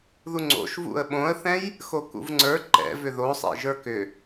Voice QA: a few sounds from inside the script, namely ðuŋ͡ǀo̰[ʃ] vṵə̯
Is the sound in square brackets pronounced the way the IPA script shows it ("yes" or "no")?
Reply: yes